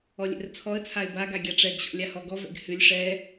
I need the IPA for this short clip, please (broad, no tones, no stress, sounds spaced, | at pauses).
ɔ lʲ ɛ̰ r t͡sʰ ɔ ə̯ t͡sʰ a ɪ̯ b a ɡ a ɡʲ a ʈ͡ʂ ɛ ɡ ɕ ɔ̰ lʲ a h ɔ ɡ ɔ v ɛ̰ ɡ h ʉ lʲ ʂ ɛ